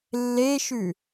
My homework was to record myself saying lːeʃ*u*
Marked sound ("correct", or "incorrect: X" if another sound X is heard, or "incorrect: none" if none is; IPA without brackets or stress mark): incorrect: ʉ